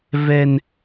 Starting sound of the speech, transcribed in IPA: v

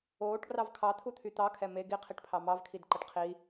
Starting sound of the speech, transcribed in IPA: oː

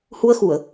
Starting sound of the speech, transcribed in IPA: h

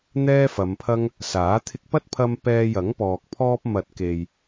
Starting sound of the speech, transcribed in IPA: n̪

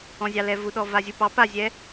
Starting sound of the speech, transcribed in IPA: ɔ̃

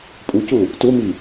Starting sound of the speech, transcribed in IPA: pʼ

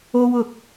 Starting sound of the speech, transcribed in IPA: o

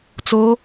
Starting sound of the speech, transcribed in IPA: t͡s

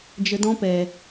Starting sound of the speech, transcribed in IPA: d͡ʒ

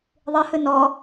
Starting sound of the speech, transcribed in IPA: ðˤ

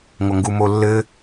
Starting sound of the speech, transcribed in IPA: ŋʷ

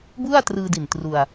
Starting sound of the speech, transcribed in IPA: b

